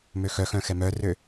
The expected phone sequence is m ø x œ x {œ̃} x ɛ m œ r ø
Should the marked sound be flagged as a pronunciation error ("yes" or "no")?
no